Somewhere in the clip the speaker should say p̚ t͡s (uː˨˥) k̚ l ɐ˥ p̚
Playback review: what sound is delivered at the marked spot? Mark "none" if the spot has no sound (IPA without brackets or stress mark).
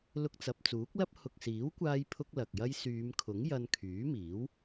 uː˨˥